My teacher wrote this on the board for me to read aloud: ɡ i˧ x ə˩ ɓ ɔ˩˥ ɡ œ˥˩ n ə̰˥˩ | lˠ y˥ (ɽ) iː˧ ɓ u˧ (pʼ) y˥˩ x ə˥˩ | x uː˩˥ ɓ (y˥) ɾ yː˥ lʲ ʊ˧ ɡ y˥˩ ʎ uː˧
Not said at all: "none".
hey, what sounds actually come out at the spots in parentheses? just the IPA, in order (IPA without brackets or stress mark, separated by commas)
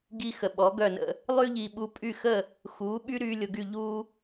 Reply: ʎ, pʼ, y˥